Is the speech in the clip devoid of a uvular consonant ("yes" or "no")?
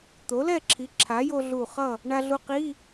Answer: no